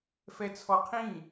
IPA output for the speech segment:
fɛt͡sʰɔqʰĩ

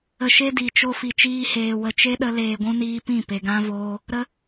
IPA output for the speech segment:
ə˨ʃe˧ di˨t͡ʃo˧ fi˨t͡ʃiː˧heː˨ wə˨ t͡ʃe˦ɗə˧ leː˨ɡʷũ˧niː˧pĩ˦˨ pe˨ɡã˦voː˦ | ɾə˦

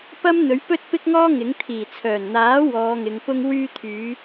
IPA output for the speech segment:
pɐ˥m n̪ɵ˨˥ɥpɵ˥t̚pɪ˥k̚ŋɔː˥ ŋɪ˨˥ŋ t̪ʰiː˨˩t͡sʰœː˨˩nn̪aː˨˥ wɔː˨˧ŋɪ˨˧ŋpʊ˥ŋ wyː˧t̪ʰyː˨˧

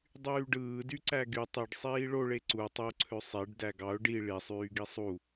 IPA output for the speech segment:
dˤyːɖɯː dyǀæɡy tˤiɖ sˤiːɭoɭe ǀu tˤoǀʰø sˤeɖ dæɡɑʊ̯ ɖi ɭisˤyː ɡisˤu

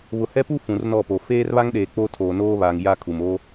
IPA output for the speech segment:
βʊ˨hɛ˦pu˦ fũ˨rnɔ˦˨po˨ feː˦rβa˦ŋɗeː˨ k͡po˦tʰoː˨noː˦βa˨ŋ ja˦kʰu˨moː˦

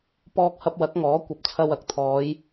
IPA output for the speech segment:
pɔː˧k̚hɐ˧p̚wɐ˨˥k̚ ŋɔː˨˥kʷɐ˨˥p̚ t͡sʰɐ˧wɐ˨˥k̚t̪ʰɔː˨˧j

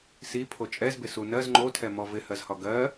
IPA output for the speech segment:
si pʰot͡ʃʼɛzbɪ sunɜz ŋ͡ǃotʰɛmɔ vɪhɜzhɒ ɡɜ

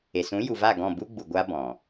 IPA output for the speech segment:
e˨sũ˨˦ju˨va˦˨ ɡɔ̃˦˨bu˦ɡ͡bu˨ ɡʷa˦bɔ̃˨

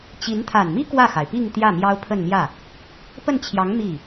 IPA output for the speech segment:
t͡ɕi˧˥n t̪ʰa˨˩nmi˥ kwä˥˩xa˩ɪ̯pi˥˧ŋ t̪jä˥˩mjɑ˥ʊ̯pʰə˥˧nmjä˥˩ | pə˥˩nt͡ɕʰjɑ˧˥ŋ mi˥˩

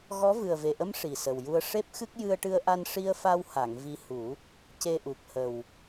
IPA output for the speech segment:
ɣɔ˧˥ vɨ˨˩ə̯ve˨˩ʔə˧˥m ʂi˨˩sə˨˩wju˧ə̯ ʂe˦˥p̚xɨ˦˥k̚ jɨ˧ə̯ʈɨ˧ə̯ʔa˧n ʂi˧ə̯fa˧wha˨˩˨ŋ vi˧hu˨˩˦ | ce˧ʔu˨˩k̚hə˨˩w

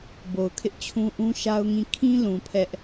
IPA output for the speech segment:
bo˨ʊ̯kʰɪ˦ʔt͡ɕʰũ˦ ʔũ˦ʃa˦ʊ̯ŋĩ˦˨ kʰĩ˦lũ˨ pʰɛ˦ʔ

